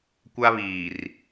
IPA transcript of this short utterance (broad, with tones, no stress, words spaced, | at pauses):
kʷa˦βiː˨r